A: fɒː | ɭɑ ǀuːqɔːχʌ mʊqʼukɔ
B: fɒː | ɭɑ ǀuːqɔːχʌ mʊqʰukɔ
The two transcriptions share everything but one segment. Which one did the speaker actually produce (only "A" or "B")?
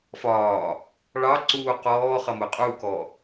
A